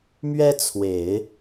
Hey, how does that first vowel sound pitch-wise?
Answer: high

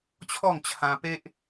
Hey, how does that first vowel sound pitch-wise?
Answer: falling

